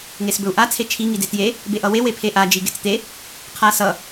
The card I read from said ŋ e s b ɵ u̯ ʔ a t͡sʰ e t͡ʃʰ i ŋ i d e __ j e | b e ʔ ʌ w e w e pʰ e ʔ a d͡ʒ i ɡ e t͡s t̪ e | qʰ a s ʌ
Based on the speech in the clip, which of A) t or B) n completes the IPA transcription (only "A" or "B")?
A